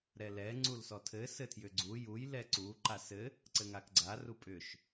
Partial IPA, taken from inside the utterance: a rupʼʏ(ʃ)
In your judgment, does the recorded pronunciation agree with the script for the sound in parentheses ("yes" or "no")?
yes